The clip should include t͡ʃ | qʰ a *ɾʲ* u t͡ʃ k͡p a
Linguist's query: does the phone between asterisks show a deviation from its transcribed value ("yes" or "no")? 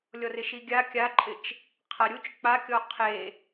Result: no